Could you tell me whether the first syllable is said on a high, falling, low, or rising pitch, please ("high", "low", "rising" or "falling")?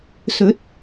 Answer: rising